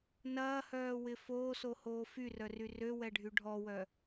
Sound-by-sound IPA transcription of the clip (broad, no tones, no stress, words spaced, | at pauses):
nɐːhœːwɪ foːsohoː fyrœry røwɛɖʱy ɖʱɔwœ